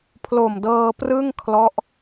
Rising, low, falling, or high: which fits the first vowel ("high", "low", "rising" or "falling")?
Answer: low